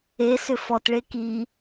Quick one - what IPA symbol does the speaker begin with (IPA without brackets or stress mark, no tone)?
e